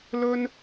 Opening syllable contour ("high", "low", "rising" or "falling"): high